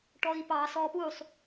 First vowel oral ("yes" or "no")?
yes